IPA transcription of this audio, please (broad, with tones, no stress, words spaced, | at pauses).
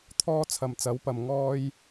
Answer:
t̪ʰɔː˥ t͡sʰɐ˨mt͡sɐ˨˥wpɐ˨m ŋɔː˧j